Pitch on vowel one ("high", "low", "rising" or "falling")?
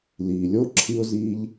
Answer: low